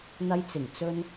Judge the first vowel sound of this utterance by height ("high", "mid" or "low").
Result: low